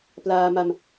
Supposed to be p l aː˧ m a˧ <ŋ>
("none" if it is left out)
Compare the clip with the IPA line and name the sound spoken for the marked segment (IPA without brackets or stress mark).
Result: m